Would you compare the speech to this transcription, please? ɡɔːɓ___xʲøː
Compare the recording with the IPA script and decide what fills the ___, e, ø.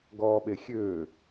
e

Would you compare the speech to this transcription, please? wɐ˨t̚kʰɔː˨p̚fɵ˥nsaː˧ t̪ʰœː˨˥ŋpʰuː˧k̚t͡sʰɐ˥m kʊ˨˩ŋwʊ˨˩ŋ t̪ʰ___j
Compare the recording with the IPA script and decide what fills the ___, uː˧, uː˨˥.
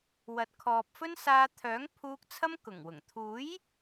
uː˨˥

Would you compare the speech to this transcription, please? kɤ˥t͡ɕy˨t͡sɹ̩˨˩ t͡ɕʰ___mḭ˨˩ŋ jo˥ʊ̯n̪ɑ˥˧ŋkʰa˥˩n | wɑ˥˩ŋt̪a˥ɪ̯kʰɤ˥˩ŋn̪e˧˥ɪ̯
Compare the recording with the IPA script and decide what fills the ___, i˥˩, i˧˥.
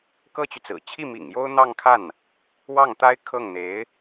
i˥˩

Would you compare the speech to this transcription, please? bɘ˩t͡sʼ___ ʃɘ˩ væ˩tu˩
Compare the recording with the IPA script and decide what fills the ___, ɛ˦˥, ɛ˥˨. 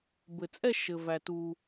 ɛ˥˨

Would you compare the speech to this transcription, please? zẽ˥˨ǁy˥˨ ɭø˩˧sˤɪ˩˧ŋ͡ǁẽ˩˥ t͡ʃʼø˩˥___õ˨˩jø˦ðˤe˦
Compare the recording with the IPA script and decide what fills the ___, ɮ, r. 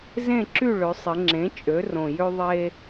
r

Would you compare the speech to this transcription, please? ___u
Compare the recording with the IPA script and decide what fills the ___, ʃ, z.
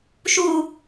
ʃ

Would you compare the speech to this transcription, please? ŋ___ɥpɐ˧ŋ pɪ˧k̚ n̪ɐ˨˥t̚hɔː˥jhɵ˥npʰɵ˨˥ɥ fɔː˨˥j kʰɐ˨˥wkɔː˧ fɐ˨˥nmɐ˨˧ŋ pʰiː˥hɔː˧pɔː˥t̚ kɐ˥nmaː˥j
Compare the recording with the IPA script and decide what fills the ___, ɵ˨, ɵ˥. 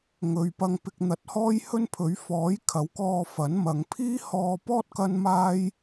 ɵ˨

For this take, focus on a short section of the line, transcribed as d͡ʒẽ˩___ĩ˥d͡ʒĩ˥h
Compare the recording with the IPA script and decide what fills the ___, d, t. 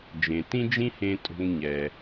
t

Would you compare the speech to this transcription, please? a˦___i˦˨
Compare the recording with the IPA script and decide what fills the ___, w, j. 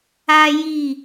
j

